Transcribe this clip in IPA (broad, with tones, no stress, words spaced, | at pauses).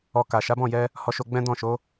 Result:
ɔ˧ka˨ ʃa˨˦bɔ̃˦˨jɛ˧ | hɔ˧ʃo˧ɡ͡bɛ̃˦ dɔ̃˦˨ʃo˨˦